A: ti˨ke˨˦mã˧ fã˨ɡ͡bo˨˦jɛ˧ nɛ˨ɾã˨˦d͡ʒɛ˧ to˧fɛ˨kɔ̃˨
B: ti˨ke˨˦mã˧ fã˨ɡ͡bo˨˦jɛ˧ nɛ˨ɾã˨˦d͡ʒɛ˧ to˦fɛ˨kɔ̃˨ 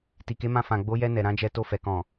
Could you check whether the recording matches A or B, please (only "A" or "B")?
A